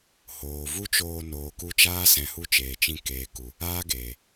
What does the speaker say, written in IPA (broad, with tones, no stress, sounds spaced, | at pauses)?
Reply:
h oː˨ v u˦ t͡ʃ oː˧ n oː˨ k u˧ t͡ʃ aː˦ s ɛ̃˧ h u˦ t͡ʃ eː˨ t͡ʃ ĩ˧ k eː˨ k u˨ | aː˦ ɡ eː˨